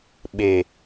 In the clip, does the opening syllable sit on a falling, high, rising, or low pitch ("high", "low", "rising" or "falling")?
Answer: low